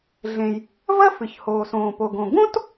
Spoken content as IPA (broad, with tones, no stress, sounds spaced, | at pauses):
ɮ ẽ˩ j | v ɐ˥ f ɨ˩ ç h oː˩ s õː˩ p o˩ ɡ õ˩ ɡ õ˥ t